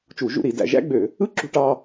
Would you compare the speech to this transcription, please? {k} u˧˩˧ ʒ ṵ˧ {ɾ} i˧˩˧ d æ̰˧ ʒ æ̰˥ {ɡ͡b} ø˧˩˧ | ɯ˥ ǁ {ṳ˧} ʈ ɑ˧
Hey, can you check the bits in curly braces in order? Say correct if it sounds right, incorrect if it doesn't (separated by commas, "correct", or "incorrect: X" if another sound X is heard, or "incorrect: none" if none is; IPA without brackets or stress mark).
incorrect: t͡ʃ, correct, correct, correct